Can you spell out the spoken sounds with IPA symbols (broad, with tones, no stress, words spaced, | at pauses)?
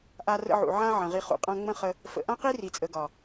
ʔa˧rə̰˧ʕṵ˨ ʕã˦ ʕə̃˨ʁi˧ χṵ˨qʼã˧ŋ͡mə̃˦ χə˦ | fə̰˨ʔã˦qi˦ ri˨t͡sʼə˨ɡɒ˨